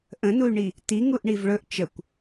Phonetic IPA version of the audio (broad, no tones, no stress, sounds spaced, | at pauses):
ʔ ə̃ n u y̯ ɳ i | t i ŋ u ʔ ɳ i v ɭ ɵ ʔ t͡ʃ ə kʷ